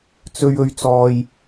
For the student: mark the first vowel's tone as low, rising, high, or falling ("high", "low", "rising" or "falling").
high